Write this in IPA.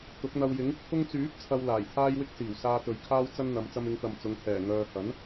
t̪ ʊ˨˥ k̚ n̪ ɐ˧ w j ɪ˨˥ ŋ ɪ˧ k̚ t̪ʰ ʊ˥ ŋ t͡s yː˨˥ p̚ t͡sʰ ɐ˧ w l aː˨˩ j t̪ʰ aː˥ j w ɪ˥ k̚ s iː˨˩ w s aː˧ t̪ ɵ˨ ɥ kʰ aː˥ w t͡s ɐ˥ n n̪ ɐ˨˧ m t͡s ɐ˧ m ɪ˨˧ ŋ t̪ ɐ˨ m t͡s ʊ˨˧ ŋ t̪ʰ ɛː˨˩ ŋ œː˨ h ɐ˨˥ n

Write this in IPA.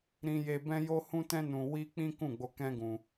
ɾ ĩ˧ j e˧ b ɛ̃˧ j o˧ h ũ˧ t ɛ̃˧ n ũ˧ w i˦ k͡p ĩ˦ k ũ˦˨ ɡ͡b o˧ k ɛ̃˦ ɡ ũ˧

